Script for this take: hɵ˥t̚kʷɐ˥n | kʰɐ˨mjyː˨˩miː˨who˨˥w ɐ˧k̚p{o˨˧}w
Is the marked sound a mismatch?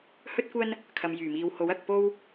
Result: yes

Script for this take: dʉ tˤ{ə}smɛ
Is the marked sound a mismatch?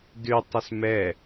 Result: no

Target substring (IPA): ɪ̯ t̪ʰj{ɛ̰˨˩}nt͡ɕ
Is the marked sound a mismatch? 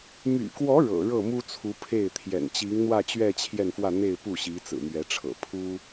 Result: no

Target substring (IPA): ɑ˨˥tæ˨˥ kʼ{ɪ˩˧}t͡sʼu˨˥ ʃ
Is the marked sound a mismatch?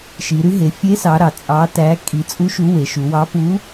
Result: yes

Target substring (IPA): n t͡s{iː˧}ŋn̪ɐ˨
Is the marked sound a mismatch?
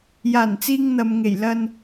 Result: no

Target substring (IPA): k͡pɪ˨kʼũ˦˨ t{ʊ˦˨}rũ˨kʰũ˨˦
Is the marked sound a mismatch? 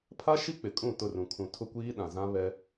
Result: no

